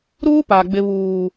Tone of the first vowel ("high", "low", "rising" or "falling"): high